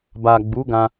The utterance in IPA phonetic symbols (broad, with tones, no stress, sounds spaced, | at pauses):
b a˨ ɡ͡b u˨˦ ɡ ã˧